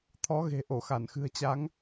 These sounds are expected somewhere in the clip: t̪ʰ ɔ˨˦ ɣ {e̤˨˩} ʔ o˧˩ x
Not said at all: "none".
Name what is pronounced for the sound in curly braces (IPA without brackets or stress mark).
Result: e̤˨˩